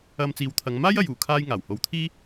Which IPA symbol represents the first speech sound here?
ɐ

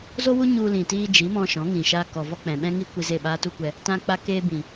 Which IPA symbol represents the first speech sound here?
z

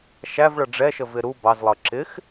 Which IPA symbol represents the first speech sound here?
ʃ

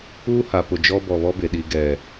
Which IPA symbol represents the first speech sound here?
uː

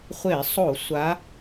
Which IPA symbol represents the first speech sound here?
χʷ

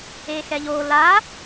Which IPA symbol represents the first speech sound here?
e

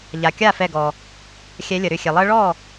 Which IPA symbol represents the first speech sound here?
ʎ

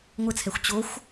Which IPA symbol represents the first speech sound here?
ŋʷ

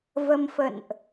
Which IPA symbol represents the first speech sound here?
v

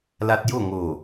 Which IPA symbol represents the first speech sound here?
l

